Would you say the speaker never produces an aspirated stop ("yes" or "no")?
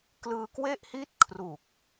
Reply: no